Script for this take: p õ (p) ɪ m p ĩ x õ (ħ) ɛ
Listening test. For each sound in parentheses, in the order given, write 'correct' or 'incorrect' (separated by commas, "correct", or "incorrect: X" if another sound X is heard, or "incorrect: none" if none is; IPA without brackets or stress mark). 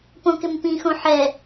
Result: incorrect: k, correct